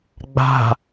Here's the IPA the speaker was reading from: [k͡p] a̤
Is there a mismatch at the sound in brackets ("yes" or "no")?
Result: yes